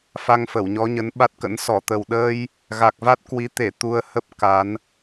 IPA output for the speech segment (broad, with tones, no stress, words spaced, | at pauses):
fa˧ŋfə˧˩wɲɔ˨˦ɲə˨˦n ɓa˦˥t̚kə̰˧˥n sɔ˧˩t̪ə˨˩wɗəː˧j | ɣa˨˩k̚va˦˥t̚kwi˨˦ t̪e˧˩ t̪u˧ə̯hə˦˥p̚ ka˨˦n